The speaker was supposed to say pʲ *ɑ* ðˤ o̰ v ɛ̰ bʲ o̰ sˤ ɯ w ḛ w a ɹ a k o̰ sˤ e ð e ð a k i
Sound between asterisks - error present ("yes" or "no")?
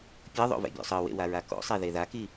yes